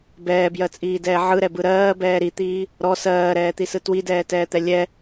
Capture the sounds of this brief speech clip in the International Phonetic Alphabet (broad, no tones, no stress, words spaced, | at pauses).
bɛːbjɜt͡sʼiːdɛː ʕɯɾɛbɯ ɾɜːbɛː ɾit̪iː | ɾɔ sɜːɾɛːt̪isɯ twidɛːtɛːt̪ɛ lʲɛ